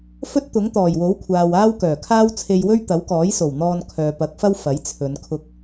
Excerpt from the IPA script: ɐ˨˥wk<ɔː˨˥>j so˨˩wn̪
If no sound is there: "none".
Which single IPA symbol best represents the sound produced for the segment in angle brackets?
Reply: ɔː˨˥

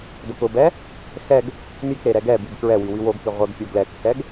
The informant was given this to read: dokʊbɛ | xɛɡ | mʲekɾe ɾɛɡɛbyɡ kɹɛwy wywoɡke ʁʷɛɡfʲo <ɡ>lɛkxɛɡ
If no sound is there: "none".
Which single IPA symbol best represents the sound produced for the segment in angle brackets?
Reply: ɡ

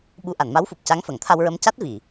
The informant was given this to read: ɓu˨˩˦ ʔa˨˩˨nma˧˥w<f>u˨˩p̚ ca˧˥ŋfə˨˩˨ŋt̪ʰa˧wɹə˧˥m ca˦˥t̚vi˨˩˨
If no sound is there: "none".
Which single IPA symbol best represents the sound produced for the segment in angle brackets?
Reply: f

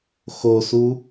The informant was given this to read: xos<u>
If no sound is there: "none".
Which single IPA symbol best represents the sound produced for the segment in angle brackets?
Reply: u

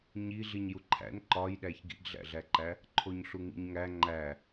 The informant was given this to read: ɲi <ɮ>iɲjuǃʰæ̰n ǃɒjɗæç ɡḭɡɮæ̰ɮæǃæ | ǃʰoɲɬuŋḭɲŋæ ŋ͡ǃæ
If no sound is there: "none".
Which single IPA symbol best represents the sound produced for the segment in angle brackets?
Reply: ɮ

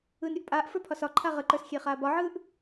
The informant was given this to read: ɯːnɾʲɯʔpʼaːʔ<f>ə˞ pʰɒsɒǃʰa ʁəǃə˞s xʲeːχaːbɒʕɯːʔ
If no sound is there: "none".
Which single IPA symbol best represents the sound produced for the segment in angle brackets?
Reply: f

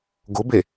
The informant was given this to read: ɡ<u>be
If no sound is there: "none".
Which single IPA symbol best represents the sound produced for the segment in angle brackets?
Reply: ʊ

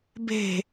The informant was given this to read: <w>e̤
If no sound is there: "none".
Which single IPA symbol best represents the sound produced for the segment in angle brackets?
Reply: b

